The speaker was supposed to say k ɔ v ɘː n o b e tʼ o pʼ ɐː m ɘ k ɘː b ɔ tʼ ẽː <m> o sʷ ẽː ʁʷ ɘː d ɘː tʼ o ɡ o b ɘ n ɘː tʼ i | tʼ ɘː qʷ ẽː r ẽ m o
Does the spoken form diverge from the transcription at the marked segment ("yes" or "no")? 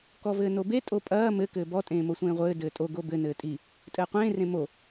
no